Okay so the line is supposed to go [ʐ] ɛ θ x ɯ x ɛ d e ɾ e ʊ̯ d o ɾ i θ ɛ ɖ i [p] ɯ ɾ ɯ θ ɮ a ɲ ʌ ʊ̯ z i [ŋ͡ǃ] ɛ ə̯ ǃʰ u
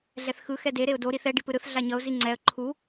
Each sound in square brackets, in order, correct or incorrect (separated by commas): incorrect, correct, incorrect